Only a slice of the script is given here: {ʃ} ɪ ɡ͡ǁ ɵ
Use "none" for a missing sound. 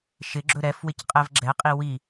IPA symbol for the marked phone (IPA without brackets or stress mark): ʃ